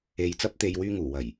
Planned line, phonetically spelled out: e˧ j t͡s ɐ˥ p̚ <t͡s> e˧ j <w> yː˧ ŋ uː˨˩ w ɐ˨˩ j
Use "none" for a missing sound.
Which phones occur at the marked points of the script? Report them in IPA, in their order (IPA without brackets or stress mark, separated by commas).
t̪, w